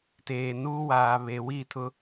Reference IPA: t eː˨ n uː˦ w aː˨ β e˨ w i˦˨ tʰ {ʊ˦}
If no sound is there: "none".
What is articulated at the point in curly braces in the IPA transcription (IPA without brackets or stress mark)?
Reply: ʊ˦